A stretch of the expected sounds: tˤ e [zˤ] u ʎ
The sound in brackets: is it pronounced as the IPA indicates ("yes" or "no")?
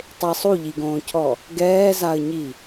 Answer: no